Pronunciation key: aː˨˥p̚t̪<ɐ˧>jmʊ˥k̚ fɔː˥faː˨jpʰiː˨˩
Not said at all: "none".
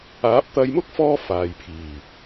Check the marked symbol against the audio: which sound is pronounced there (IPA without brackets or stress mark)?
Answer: ɐ˧